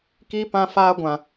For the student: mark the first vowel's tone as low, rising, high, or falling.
high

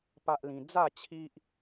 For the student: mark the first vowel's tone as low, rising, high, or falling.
high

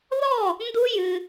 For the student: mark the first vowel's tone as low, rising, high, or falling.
falling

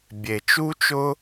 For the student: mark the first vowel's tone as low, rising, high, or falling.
low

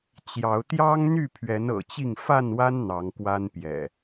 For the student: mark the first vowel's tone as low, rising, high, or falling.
rising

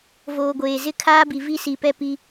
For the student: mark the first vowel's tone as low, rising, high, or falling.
low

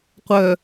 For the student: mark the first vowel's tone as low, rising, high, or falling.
low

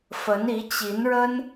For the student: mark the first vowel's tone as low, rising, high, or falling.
rising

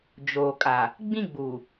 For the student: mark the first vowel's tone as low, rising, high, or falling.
low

